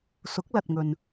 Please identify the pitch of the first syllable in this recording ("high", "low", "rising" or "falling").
rising